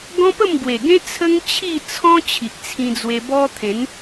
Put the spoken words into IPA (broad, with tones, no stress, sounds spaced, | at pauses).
ɡ ɔ̃˦ p ə˥˧ m ɡ w e˨˩ ɡ ẽ˦ t͡sʰ ə˦ ŋ t͡ɕʰ i˥˧ t͡sʰ ɔ̃˦ t͡ɕʰ i˨ ʔ t͡sʰ ĩ˧ d͡z w e˧ b ɔ˦ t̪ʰ ẽ˨˦ n